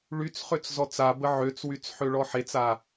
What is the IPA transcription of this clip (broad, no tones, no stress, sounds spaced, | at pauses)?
ɭ y t͡s χ ø t͡s z ɔ t͡s a b ə ʕ ø t͡s w y t͡s ħ ø ɭ ɔ ħ e t͡s a